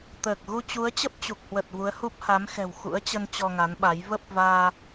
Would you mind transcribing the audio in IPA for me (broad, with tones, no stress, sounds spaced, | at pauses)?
t̪ əː˨˩ k̚ ɣ u˧ t͡ɕ u˨˦ ə̯ t͡ɕ ə˦˥ p̚ t͡ɕ u˨˩ k̚ h w ə˨˩ t̚ v u˨˦ ə̯ h u˦˥ p̚ h a˨˦ m x ɛ̤˨˩ w x ṵ˧˥ ə̯ t͡ɕ ə˧ n t͡ɕ ɔ˧ ŋ a˨˦ n ɓ a˨˦ j v ə˦˥ p̚ v aː˧